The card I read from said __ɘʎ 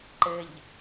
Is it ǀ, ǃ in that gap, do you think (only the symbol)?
ǃ